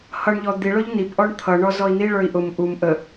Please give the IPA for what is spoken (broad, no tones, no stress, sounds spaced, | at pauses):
h ʌ ɳ ʎ ɔ d̪ i ɭ ʊ ʎ n i p ʔ ɔ ɳ t̪ʰ ʌ ɳ ɔ z ɔ i̯ n̪ i ɭ ə˞ i̯ ʔ ʊ m ʔ u m ʔ ə